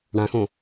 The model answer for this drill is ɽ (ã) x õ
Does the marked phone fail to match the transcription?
no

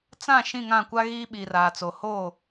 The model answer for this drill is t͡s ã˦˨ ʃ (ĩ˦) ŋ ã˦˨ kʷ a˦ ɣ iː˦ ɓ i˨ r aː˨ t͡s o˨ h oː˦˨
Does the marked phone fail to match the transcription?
yes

